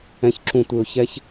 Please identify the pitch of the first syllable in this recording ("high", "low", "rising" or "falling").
low